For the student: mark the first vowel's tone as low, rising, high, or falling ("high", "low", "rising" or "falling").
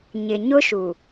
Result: low